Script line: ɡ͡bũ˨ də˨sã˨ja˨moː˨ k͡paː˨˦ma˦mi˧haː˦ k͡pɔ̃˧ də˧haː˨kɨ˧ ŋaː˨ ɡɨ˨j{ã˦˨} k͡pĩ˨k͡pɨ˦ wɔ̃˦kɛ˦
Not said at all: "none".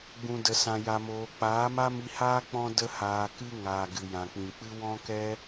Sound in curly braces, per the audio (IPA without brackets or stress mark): ã˨